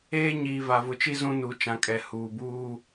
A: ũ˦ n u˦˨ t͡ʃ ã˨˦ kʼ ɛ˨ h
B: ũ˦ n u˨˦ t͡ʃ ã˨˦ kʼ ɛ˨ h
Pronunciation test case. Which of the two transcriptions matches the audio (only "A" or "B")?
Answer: B